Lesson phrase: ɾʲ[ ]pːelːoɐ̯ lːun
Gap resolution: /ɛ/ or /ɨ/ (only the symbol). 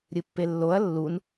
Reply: ɨ